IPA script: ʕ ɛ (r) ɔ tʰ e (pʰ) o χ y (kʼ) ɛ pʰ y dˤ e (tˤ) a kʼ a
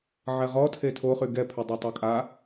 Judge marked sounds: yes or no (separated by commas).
no, no, no, yes